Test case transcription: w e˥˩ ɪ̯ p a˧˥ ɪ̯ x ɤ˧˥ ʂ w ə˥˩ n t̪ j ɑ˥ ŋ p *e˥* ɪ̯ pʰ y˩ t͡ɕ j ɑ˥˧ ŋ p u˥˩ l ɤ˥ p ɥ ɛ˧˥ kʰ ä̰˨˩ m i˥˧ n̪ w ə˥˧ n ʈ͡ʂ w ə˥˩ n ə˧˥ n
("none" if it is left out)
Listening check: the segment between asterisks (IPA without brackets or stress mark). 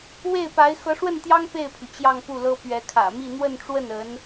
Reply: e˥˩